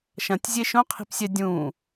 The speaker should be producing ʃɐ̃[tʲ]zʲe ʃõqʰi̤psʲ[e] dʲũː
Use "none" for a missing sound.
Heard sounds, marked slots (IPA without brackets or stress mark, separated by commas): tʲ, ɛ